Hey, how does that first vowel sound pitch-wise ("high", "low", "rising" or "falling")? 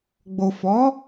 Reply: low